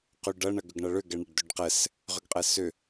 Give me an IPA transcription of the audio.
qyɖɐ ɳɐɡʏɡɳɐɭʏ ɡɛɳaɖdøɖqɛs | ʁʏɡqʼɛsʏ

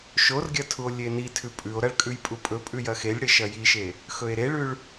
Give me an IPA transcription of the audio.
ʃorɡʲɐ tʰuo̯lʲenitʰʉ pʼʉo̯ ɾɐɭkʼʉj pʼupʼɵpʼʉ jɐxelʲɽe ʃɐjiʃe | xɵe̯ɾeɭʉɭ

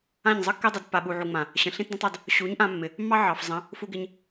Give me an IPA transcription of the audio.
ã˦˨ɲzˤə˦kːe˦dˤɪ˨˦d pːa˨ɓu˨ʕu˨ŋ͡mã˨ | ɕə̃˨ ɬĩ˦tdə̃˦tˤɑ˧d | ɕu˨˦ɲʔã˧mːɪ˨ | mːɑ˦ ʕɑ˨fzˤə̃˨˦ | fu˧ɡɪ˧ɲ

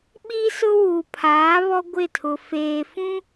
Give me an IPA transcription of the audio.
ɓiː˦sʊ˦ wuː˨pʰaː˨˦ βɔ˦ɡʷɪ˦˨tʰʊ˨ feː˨fũ˦

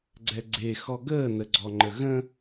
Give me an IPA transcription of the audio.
ɡ͡ǀɛɡ͡ǀe xɔɡəː nəɡ͡ǀɔŋ͡ǃəɣə̃

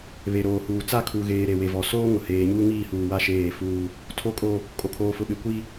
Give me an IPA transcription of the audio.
βe˨ɾoː˨huː˨t͡sa˦˨ kʰu˨ɣeː˨ ɾe˨we˨vɔ˨ soː˦ŋʊ˨ heː˨ɲuː˦ŋiː˦˨huː˨ wa˦˨ʃeː˦˨fuː˦ | tʰo˦kʼo˦ | kʼo˨kʰoː˨fʊ˨ɓe˨ kʷi˦

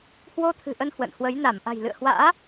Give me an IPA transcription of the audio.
hwo˧t̪ʰɨ̤˨˩ʔə˧n hwə̰˧˨nhwə˨˦j na˧˩m ʔa̤˨˩jlɨ̰˧˨ə̯hwa̰ː˧˥

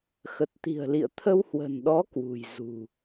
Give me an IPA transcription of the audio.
xə˨˩t̚t̪i̤˨˩ə̯lḭ˧˨ə̯t̪ʰə˧w hwə̤˨˩nɗɔ˨˦ kwṳ˨˩j zṳ˨˩

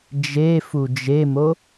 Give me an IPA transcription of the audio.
d͡ʒefu d͡ʒemo

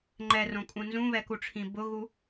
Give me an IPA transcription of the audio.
ŋ͡ǃɛrõkʼũ nzũβɛkuʈ͡ʂʰĩ bʊɣu

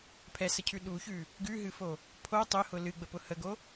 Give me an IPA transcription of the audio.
pʰɛsəcʰʉ ɗuçʉ | ɡʉɦɨfo | pʰo tˤʊhʊ lɨɡ͡bəpʊ həɡo

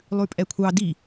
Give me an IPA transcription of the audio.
lˠʉpʼɛkʷʰɑ di

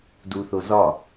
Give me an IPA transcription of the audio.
duθo zɒ

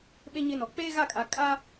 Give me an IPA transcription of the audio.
ɓe˦ɲɪ˦nɔ˨ k͡peː˦ɣa˦˨kʼa˨ kʼa˦

